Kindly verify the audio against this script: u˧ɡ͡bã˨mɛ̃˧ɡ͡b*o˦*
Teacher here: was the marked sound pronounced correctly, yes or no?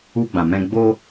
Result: yes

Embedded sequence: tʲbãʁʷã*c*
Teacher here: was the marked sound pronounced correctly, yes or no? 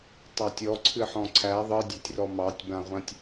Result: no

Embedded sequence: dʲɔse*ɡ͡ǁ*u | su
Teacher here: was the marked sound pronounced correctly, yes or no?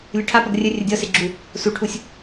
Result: yes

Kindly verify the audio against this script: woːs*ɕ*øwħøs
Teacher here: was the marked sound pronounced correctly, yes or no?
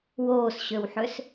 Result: yes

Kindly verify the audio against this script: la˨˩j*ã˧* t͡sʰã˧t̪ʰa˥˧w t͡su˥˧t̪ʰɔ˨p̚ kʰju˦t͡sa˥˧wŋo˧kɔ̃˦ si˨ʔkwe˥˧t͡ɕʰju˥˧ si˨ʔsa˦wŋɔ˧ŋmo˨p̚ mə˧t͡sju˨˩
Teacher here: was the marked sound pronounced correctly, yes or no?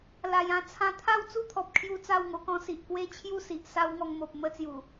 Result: yes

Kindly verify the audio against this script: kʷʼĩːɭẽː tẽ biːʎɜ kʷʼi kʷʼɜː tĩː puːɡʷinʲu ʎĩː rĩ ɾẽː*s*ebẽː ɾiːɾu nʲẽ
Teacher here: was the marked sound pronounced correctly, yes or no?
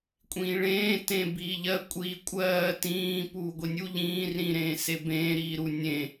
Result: yes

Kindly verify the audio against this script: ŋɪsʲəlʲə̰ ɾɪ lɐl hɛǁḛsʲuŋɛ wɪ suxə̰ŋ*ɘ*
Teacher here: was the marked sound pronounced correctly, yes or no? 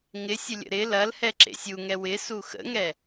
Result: no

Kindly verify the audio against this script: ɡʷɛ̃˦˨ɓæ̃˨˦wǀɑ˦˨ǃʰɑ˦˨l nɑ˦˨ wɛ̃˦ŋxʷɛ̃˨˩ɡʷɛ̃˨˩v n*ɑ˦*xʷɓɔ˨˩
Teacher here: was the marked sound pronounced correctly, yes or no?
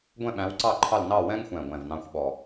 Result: no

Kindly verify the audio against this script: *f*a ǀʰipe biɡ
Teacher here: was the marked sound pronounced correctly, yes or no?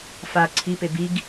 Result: yes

